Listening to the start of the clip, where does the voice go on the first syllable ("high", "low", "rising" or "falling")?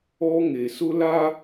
high